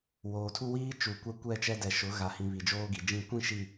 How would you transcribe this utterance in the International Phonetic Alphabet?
w oː˨ tʰ u˦ w iː˦ t͡ʃ u˨ kʷ ɛ˦ kʷ ɛ˦˨ t͡ʃ ɛ˦ d ɛ˨ ʃ ʊ˨˦ ɣ a˨ h ĩ˨ β i˨ d͡ʒ oː˦ ɡ i˨ d͡ʒ ĩ˦˨ kʷ ĩ˦˨ ʃ i˨

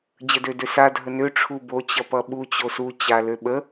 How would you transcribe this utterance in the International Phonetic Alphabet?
d͡ʑ ə d ø d ø s a dʱ ə n ø ʈ͡ʂʰ u b o t͡ɕ ʌ p ʌ ɓ u t͡ɕ o s u t͡ɕ a l ø ɓ ə

